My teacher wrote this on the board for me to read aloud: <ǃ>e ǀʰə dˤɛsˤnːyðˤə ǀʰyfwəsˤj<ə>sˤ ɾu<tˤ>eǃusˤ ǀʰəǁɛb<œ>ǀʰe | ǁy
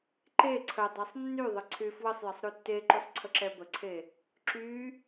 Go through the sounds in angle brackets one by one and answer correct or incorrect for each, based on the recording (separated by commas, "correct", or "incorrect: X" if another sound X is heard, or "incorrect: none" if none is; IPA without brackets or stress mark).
correct, correct, incorrect: tː, incorrect: ə